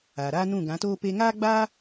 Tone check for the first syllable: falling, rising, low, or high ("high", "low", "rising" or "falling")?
low